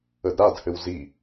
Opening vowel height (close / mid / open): mid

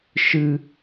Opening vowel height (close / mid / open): close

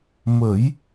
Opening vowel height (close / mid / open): mid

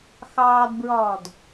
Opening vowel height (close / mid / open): open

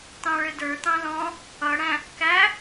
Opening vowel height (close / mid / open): open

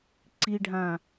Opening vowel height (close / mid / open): close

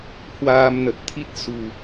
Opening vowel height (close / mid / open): open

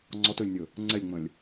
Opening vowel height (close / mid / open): mid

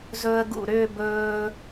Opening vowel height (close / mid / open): mid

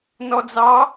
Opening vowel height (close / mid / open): mid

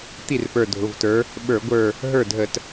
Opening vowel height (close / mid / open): close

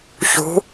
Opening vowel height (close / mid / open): close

